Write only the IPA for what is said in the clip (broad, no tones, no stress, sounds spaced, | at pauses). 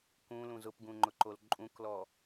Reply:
k ũ l ũ z ʊ p ɡ ũ ŋ͡ǃ ʊ ǃ o l ǃʼ ũ k l ɔ